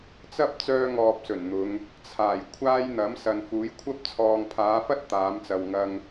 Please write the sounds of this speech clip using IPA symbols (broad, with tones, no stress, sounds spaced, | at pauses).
t͡s ɐ˥ p̚ t͡s œː˥ ŋ ɔː˧ p̚ s ɵ˨˩ n n̪ ʊ˨˧ ŋ | t͡sʰ aː˨˩ j kʷʰ aː˥ j n̪ ɐ˨˥ m s ɐ˨ n f uː˨˥ j kʷʰ ɐ˥ p̚ t͡sʰ ɔː˨ ŋ pʰ aː˨˧ f ɐ˥ t̚ t̪ aː˨˧ m t͡s ɐ˨ w ŋ ɐ˧ ŋ